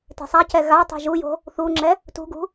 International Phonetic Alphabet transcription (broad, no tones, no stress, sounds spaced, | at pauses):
t e̤ sˤ a c ɛ ɣ a tˤ ṳ ʒ u j o̤ | θ u ŋ͡ǁ ɛ | t ṳ ɡ ṳ